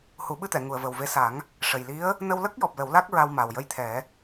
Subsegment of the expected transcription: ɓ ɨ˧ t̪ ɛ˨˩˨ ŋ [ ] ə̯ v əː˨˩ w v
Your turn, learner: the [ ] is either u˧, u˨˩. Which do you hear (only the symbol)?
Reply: u˨˩